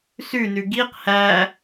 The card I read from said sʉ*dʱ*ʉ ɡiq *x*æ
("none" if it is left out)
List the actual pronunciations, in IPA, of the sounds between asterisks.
n, h

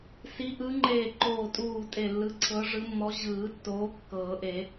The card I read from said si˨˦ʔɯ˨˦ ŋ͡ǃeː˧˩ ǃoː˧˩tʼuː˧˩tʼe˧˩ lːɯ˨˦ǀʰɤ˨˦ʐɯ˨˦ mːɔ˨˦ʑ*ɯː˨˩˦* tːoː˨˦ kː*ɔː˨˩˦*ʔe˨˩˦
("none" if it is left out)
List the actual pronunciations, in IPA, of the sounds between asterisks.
ɯː˨˩˦, ɤː˨˩˦

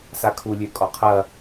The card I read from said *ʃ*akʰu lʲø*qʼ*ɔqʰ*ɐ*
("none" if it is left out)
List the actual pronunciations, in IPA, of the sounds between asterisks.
s, kʼ, ɐ

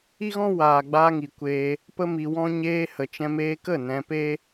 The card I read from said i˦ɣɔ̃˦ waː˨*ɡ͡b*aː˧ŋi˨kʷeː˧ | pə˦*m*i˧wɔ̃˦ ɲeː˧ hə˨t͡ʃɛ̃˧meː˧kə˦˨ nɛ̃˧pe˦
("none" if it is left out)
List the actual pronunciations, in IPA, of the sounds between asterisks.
ɡ͡b, m

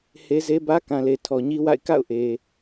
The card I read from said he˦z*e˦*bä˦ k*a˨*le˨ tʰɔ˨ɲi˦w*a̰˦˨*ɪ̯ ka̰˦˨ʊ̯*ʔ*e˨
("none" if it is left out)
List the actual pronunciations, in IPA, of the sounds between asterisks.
e˦, ã˨, a̰˦˨, ʔ

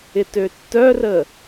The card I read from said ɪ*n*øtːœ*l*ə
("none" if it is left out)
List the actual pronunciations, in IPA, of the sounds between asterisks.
t, r

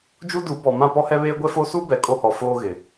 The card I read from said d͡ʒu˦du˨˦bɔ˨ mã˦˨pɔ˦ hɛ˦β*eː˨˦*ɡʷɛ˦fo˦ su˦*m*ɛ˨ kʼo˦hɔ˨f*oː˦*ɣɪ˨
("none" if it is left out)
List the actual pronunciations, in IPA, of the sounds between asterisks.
eː˦, b, oː˦

